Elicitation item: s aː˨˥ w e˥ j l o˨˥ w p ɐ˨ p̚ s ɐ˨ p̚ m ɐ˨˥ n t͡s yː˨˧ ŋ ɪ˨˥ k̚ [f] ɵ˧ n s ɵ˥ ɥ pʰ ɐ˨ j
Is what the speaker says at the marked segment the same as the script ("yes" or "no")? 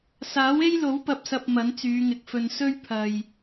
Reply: yes